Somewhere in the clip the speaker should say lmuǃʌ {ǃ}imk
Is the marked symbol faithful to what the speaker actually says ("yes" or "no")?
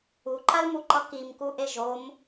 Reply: no